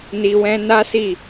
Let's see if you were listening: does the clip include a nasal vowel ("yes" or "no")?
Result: yes